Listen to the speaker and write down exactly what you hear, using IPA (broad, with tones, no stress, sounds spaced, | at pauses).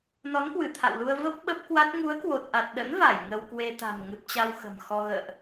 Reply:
n ɔ˨˦ n k w ɨ˧˩ t̪ʰ a̰˧˨ w l u˧ ə̯ v ə˦˥ p̚ ɓ ə˦˥ p̚ k w a˦˥ t̚ ŋ u˨˦ ə̯ k w o˨˩ t̚ ʔ a˨˩ t̚ ɗ ə̰˧˥ n v a˧˩ j ŋ ə˧ w k w e˧ t̪ a̤˨˩ m ŋ ɨ˨˩ p̚ t͡ɕ a˧ w x ə̤˨˩ m x ɔ˧ ɣ ə̰ː˧˨ ʔ